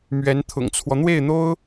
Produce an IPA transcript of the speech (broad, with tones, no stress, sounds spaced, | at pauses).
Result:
m ɥ ɛ˧˥ n t̪ʰ ʊ̰˨˩ ŋ t͡sʰ w ɔ˦ n̪ w e˥˩ ɪ̯ n̪ o˥ ʊ̯